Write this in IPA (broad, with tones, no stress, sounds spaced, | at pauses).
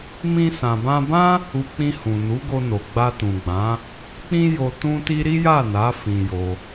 m ĩ˧ s ã˨ b ã˧ b ã˦ | u˧ k͡p ĩ˧ h ũ˨ n u˨˦ ɡ o˧ n o˨ ɡ͡b a˧ t ũ˨ ɡ͡b ã˨˦ | k͡p ĩ˦ j o˧ t ũ˦ t i˦ ɾ i˦ j a˦˨ n a˨˦ f ĩ˧ j o˧